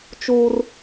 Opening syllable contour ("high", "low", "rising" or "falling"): high